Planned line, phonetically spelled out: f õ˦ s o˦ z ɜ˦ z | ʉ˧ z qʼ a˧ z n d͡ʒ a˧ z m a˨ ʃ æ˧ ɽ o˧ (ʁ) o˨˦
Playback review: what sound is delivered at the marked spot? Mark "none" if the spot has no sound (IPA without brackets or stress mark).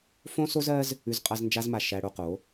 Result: q